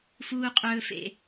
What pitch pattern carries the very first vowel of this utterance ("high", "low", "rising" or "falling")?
high